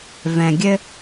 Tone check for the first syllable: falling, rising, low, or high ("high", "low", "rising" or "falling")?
low